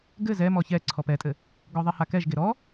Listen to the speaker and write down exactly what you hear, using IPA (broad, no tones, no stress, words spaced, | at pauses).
ɡɘ zɛmɔ çɛ ǀʰɔpɛtʼɘ | ɡɔðˤɛhakɛʒ ɡeɾɔ